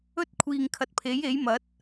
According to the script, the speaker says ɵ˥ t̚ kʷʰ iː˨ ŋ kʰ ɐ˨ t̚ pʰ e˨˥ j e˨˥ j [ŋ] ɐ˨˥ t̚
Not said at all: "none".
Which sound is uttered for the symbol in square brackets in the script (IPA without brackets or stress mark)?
m